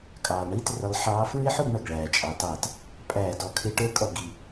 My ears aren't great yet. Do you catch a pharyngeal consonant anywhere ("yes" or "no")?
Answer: yes